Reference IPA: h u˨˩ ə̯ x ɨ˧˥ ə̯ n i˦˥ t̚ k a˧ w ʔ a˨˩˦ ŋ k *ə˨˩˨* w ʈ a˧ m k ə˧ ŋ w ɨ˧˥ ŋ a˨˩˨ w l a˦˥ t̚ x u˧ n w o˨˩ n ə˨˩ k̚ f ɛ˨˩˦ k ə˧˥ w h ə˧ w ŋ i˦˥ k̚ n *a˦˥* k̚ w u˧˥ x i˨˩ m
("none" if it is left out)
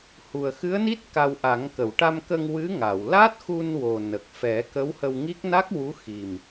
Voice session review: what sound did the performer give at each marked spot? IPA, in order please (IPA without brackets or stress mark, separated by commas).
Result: ə˨˩˨, a˦˥